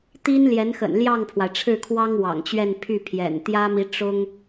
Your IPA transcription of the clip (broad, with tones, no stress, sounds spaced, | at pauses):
t̪ i˥ n l j ɛ˧˥ n x ə̰˨˩ n l j ɑ˥˩ ŋ pʰ w a˩ ɪ̯ ʈ͡ʂʰ ɻ̩˥˩ kʰ w ɑ˥ ŋ w ɑ̰˨˩ ŋ t͡ɕ ɥ ɛ˥˧ n pʰ y˥˩ pʰ j ɛ̰˨˩ n t̪ j ä˥ m i˧˥ ʈ͡ʂ ʊ˥ ŋ